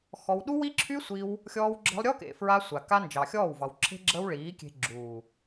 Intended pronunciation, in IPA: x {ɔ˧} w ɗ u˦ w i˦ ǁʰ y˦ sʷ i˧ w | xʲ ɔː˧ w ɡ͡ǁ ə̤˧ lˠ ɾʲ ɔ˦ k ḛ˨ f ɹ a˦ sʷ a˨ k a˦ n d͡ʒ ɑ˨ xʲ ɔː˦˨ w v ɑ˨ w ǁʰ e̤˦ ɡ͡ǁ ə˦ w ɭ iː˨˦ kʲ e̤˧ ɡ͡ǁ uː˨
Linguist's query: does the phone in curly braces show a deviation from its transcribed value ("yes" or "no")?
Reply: no